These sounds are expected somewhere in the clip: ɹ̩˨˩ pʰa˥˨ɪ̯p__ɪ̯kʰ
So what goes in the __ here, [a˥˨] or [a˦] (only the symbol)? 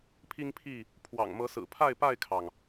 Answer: a˥˨